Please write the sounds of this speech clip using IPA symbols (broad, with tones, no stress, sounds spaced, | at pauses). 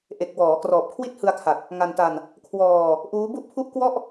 ʔ e˨˩ k̚ w ɔː˩˦ k r ɔː˨˩ p̚ kʰ w i˥˩ t̚ h ɯ˧ a̯ kʰ a˨˩ t̚ | ŋ a˧ n t a˧ n | kʰ w ɔː˧ | ʔ uː˦˥ b u˥˩ ʔ pʰ u˥˩ ʔ k w ɔ˥˩ ʔ